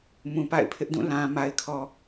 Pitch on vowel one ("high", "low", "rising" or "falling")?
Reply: low